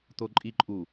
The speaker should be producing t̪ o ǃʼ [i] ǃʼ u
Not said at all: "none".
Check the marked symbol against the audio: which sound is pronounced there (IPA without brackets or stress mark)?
i